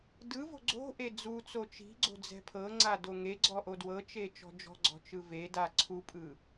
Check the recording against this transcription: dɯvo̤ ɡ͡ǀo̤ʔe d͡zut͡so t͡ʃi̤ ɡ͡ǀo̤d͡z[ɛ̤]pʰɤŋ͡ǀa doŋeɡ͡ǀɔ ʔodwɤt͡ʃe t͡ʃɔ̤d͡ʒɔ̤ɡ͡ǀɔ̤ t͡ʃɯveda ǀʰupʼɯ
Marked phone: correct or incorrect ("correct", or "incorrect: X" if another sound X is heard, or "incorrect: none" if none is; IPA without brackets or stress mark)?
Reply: correct